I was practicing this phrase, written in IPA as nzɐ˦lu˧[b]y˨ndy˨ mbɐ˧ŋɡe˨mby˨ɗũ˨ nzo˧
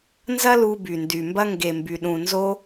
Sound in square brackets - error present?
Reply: no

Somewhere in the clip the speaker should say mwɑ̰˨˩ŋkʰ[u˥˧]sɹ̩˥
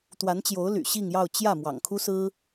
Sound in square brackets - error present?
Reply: yes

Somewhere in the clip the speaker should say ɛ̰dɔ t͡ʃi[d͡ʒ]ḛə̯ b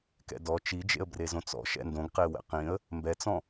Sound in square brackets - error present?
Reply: no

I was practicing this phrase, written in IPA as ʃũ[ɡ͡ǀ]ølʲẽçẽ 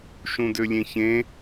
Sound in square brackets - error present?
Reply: yes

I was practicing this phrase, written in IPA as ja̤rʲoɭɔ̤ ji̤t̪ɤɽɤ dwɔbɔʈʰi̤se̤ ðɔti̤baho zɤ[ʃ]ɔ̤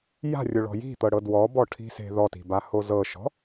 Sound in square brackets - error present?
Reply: no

